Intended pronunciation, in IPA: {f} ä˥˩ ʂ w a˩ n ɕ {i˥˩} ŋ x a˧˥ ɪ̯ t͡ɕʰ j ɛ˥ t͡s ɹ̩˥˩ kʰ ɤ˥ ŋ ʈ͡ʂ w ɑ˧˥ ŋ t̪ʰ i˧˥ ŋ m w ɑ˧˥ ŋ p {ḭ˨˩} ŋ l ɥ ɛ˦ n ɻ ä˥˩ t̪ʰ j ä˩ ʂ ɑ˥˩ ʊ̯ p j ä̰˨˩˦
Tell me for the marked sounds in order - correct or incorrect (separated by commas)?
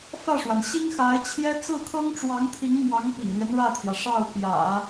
correct, incorrect, correct